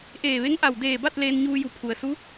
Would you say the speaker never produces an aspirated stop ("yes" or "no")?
no